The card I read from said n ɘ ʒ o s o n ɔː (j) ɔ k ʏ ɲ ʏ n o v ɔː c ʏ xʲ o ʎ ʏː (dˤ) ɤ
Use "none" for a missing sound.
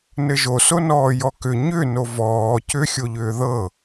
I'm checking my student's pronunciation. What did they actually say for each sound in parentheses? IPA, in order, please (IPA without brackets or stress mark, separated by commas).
j, ð